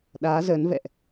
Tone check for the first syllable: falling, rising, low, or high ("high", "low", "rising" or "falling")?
rising